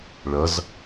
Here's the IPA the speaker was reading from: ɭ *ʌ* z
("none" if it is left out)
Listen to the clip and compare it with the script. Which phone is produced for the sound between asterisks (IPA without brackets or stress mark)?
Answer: ʌ